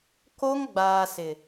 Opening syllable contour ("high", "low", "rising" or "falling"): high